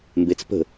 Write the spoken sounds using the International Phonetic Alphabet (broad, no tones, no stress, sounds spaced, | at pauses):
m b e t͡s p ə̤